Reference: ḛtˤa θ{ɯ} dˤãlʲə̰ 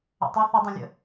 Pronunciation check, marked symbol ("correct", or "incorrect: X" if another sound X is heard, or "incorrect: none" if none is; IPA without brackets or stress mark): incorrect: ə